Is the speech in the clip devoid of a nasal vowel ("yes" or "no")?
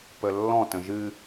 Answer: no